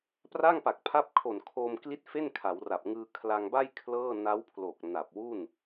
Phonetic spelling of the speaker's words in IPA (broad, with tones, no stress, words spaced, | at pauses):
pra˥˩ŋpa˨˩k̚pʰa˦˥p̚ kʰo˨˩nkʰo˧mkli˦˥t̚ fe˥˩n kʰa˩˦wra˨˩p̚ ŋɯː˧ kʰla˧ŋba˥˩j kʰlɤː˥˩ na˦˥wpʰlo˨˩k̚ na˨˩p̚wu˥˩n